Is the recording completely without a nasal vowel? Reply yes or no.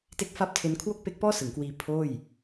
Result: yes